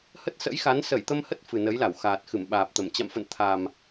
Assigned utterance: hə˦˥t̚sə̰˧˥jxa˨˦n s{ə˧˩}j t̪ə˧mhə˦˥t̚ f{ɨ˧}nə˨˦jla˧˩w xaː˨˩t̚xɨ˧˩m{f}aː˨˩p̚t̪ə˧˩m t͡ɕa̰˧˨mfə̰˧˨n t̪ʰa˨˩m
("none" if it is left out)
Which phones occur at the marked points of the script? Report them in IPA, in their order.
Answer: ə˧˩, ɨ˨˩, ɓ

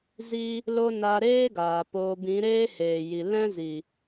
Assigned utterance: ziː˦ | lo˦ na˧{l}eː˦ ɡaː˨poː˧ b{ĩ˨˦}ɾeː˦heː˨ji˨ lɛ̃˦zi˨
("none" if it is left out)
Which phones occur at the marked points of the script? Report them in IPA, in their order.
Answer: ɾ, ĩ˨˦

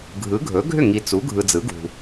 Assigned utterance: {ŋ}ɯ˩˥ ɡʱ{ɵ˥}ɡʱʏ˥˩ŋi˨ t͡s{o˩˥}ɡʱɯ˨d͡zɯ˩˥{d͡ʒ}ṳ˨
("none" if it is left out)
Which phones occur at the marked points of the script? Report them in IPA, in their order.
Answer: ɡʱ, ɵ˩˥, u˩˥, ɡ

